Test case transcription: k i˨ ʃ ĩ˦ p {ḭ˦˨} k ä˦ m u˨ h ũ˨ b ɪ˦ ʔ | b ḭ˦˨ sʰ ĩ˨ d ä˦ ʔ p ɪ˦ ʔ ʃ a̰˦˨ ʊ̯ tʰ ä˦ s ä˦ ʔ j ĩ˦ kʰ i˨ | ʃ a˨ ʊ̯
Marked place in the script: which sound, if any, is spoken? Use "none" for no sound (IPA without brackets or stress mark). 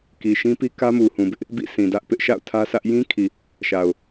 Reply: i˦